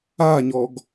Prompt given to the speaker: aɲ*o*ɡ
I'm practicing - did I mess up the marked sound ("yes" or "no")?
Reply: yes